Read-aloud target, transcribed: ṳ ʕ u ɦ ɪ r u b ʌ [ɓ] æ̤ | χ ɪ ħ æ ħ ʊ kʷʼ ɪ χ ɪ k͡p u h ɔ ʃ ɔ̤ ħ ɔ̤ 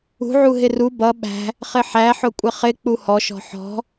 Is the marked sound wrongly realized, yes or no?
no